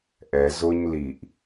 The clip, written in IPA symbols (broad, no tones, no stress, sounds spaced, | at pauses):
ʔ ɛ z ʊ ɲ l i ʔ